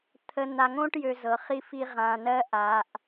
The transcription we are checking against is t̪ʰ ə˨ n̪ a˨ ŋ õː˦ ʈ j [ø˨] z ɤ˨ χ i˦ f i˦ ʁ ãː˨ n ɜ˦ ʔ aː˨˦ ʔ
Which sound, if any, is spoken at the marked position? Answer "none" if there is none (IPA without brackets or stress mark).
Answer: ø˨